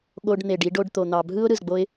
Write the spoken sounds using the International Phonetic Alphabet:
ɠo˧ɖn̪e˨ɖi˧ɖ o˧ɖt̪o˨n̪ɑ˨ bʱɯ˦ʊ̯ ɾɯ˨zɡ͡bo˦ɪ̯

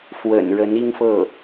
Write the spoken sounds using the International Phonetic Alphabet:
fwə̰˨˩nɻə˧˥ni˥ŋfɤ˥˩

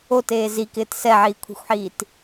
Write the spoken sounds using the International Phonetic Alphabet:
oteː zikɪːt sɛʕiːkʷʰi̤xʷħiːt

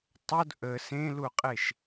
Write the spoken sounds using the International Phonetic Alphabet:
tˤod ʔə sẽluqʼeʃ

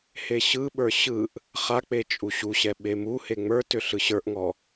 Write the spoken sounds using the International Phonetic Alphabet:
heɕɯɓə˞ ɕɯʔ | χak͡pe t͡ʃʼuɕuɕɛ ɓemuhe ŋ͡mə˞tʏ ɬɯɕə˞ʔŋɔ

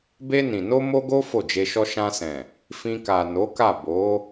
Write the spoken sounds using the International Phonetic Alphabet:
be˧nĩ˨no˧ mo˦ɡo˦ fo˦˨d͡ʒe˧ʃɔ˦ ʃã˧sɛ̃˨ | fĩ˧ka˨no˨˦ka˦˨ bo˨˦

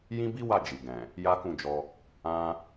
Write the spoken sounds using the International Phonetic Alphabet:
jĩ˦bi˦wa˦˨ d͡ʒi˨ ɡɛ̃˨ | ja˦kũ˦˨d͡ʒɔ˧ | ã˦

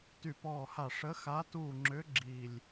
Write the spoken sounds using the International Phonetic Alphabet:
ty˦˨pɔː˦˨ha˦˨ ʂə˧˥xa˧˥tuː˦˨ŋ͡ǁʏ˧˥ ɡ͡ǁiː˦˨lʲ

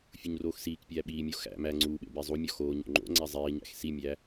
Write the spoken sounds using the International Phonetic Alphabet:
fʲuɲroːxsiːkpʲæː ɓiːmʲo xæ̰ mæ ŋ͡ǀuːɓḛ bezˤumʲɒ xoːɲo̰ ŋ͡ǃo̰ ŋ͡ǀæzˤiːɲæ̰x simʲæ

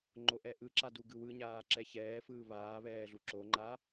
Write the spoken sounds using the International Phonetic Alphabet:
ŋ͡ǃoʔɛʔɯǁa duɡɯwɯɲaː ǁɛçɛːfɯː βaːβɛː ɮuǁoŋ͡ǃa

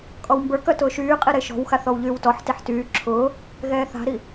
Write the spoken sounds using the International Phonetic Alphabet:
kʼɔwmbə˞kœ tʊːʃyːqʼi ɾeʃɔ̤wxaθ ɔwʎyːwtɔħtiħ tyː ǁʰʊː | ɣɛːθa̤ɾi

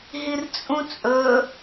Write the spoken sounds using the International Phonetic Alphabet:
ɦirt͡sʼũt͡sʼɵ

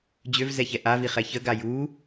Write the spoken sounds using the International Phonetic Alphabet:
d͡ʑøvzɛçɛ ʔaviχɛ çəɡa ju

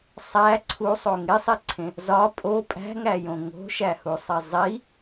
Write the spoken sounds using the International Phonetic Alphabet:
sˤæ ǀʰusˤo ŋesˤiǀʰẽ | zɒ pʼo pʼæ̤ŋæjõ ŋo̤ʃæhusˤe zˤi

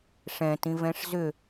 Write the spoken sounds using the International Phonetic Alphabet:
ʂɛ̃tĩvɛ̃ʂ zʏ

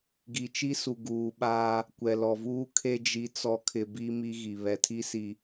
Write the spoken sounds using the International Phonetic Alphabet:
ɡi˨t͡ʃi˦su˨ ɡuː˨ɓaː˦ | kʷɛ˨lɔ˨vuː˦ kʰe˦ d͡ʒi˨t͡sɔ˨kʰɪ˨ bi˦mi˦ɣi˨ βɛ˨tʰi˦si˨

